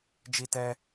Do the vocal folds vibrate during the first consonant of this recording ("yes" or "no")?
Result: yes